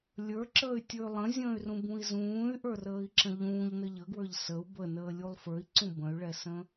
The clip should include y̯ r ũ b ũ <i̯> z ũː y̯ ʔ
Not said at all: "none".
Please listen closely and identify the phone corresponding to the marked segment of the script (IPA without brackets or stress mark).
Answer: i̯